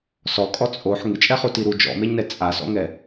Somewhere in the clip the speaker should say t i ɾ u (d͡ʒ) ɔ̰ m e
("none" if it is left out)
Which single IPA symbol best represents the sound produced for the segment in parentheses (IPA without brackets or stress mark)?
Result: d͡ʒ